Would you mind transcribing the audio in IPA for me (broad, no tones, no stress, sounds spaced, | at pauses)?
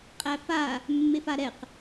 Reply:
qʼ æ f a | mː e f a ɾ ɛ q